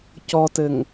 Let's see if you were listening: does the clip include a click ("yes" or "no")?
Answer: no